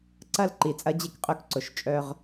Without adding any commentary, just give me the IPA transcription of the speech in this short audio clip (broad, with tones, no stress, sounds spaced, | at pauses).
ǀ ɐ˦ l ǃ i˨ t͡sʼ ɐ˦ d͡ʑ e˦ k qʼ ø˦ k ǀ ʊ˨ ʃ t͡ʃʼ œ˦ ʁ